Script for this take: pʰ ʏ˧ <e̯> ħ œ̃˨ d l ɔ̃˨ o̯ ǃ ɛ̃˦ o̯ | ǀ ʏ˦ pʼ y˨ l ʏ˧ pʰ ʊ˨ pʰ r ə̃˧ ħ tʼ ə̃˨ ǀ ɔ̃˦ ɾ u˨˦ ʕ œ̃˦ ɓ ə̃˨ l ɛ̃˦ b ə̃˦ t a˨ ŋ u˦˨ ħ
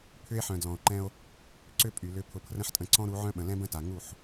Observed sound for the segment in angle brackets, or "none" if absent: e̯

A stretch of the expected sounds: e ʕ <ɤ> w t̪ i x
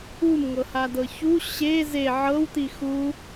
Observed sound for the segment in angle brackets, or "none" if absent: ɤ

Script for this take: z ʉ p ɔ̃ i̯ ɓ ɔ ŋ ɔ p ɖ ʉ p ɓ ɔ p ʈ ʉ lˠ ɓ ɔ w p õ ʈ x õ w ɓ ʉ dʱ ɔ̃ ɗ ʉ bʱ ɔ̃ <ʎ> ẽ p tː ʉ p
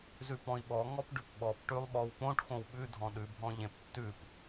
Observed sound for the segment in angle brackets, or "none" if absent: ʎ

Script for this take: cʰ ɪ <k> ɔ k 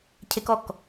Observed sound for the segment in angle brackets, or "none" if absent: k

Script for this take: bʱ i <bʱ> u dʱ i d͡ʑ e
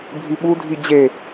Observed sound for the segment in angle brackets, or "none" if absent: ɓ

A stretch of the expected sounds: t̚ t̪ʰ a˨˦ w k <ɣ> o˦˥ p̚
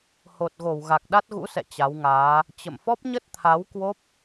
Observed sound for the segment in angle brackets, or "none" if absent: w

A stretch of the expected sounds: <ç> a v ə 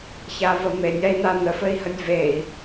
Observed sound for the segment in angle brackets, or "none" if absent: ç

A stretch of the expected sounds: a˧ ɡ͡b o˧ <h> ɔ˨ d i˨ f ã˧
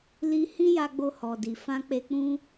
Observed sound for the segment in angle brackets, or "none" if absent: h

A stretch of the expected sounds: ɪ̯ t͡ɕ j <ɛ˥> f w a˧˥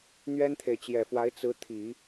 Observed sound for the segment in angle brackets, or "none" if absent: ɛ˨˩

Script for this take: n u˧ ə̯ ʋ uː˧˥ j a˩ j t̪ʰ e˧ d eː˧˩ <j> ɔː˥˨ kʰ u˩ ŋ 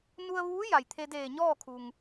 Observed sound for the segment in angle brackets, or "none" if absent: ɲ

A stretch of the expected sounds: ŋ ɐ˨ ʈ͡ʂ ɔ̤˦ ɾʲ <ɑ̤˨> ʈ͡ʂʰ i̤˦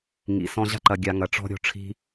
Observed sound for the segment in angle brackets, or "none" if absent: ɔ̤˨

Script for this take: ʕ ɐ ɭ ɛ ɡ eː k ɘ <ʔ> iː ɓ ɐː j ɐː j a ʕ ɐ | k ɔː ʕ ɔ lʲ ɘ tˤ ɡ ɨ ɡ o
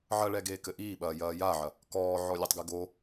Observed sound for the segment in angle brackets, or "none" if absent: ʔ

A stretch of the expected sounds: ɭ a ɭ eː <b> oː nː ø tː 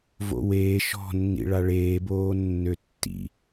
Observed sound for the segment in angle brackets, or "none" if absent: b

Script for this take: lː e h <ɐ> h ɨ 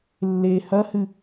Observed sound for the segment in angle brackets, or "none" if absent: ɐ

